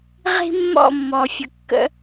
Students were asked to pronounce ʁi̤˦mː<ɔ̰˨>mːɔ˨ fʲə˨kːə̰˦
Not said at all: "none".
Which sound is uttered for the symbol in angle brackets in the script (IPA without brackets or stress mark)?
ɔ̰˦˨